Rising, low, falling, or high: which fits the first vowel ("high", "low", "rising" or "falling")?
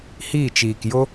falling